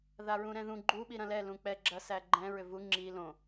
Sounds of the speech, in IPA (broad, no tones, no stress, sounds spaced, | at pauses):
ð a ɹ ũ ɾ ɛ̃ ð ũ ɡ͡ǃ u ɓ i ɾ ɐ̃ l ɛ l ũ k͡p ɛ ɡ͡ǁ ɐ s æ ɡ͡ǃ ɛ̃ ɹ ʏ v u ŋ͡ǁ i l õ